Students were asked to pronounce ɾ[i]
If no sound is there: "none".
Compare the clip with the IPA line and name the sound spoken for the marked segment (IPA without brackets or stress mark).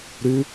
y